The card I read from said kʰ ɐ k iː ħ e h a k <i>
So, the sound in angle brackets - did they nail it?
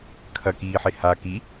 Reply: yes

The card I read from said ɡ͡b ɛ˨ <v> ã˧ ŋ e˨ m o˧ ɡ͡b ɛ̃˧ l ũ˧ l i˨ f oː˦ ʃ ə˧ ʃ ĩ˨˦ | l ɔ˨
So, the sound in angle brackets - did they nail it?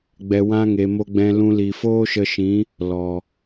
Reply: no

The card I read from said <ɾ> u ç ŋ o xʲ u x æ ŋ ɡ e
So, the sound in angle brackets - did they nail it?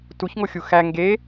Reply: no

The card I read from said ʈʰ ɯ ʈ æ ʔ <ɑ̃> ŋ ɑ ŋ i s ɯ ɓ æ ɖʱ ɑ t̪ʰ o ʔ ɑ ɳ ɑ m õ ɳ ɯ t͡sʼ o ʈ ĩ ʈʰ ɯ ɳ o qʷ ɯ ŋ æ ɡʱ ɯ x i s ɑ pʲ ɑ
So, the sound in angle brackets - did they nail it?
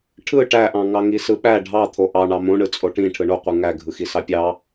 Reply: yes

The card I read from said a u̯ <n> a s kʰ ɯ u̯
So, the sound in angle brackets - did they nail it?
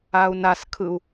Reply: yes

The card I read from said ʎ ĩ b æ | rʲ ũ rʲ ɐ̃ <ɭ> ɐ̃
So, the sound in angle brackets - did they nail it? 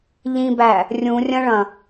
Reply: yes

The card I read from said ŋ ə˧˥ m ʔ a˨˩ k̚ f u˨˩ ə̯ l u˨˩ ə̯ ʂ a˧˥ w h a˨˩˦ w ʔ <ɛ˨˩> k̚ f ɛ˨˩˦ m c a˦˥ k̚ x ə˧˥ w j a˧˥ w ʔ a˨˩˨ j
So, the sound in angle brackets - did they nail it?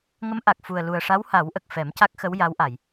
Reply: no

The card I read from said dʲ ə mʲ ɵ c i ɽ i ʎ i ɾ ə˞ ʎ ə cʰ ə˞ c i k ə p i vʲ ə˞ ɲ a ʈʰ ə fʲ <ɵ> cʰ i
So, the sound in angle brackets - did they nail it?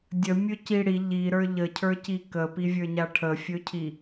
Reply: yes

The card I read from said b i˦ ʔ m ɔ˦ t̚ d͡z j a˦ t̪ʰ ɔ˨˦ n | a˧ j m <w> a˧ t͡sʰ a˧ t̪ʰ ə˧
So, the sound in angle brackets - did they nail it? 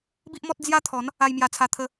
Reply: no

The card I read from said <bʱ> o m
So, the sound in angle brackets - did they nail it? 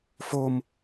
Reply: no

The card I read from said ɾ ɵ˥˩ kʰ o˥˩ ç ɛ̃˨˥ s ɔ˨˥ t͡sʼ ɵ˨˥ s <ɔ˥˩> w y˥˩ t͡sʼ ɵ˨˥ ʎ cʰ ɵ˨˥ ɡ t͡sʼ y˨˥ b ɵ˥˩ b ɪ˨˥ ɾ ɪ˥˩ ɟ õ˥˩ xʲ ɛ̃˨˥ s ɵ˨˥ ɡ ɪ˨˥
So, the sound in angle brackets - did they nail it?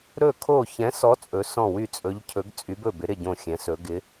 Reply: no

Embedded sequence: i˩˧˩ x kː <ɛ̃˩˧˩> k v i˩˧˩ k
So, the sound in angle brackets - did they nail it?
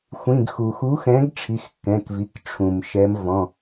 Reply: yes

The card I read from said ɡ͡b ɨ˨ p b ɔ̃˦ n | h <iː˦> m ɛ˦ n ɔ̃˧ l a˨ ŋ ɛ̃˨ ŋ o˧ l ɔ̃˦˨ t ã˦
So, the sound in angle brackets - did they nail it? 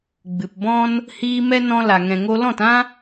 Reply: no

